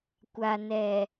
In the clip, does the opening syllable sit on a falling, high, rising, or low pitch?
low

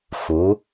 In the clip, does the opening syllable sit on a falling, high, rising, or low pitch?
rising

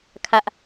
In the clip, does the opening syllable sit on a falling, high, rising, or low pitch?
high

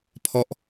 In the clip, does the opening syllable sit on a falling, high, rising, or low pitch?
falling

